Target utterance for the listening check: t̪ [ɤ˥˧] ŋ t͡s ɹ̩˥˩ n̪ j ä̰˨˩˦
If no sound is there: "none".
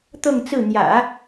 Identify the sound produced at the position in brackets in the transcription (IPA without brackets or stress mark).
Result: ɤ˥˧